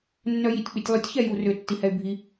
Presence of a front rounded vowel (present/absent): present